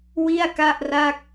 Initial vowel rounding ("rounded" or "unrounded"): unrounded